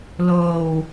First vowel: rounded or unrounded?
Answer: rounded